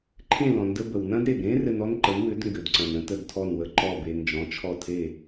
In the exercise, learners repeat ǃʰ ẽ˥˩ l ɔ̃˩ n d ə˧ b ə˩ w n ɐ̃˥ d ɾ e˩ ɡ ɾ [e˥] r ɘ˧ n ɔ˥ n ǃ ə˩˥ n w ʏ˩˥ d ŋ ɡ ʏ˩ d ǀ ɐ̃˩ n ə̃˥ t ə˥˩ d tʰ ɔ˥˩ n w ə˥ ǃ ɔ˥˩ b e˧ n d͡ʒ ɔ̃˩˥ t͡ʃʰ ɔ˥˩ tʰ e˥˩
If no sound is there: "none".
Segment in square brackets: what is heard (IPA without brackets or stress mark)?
ẽ˥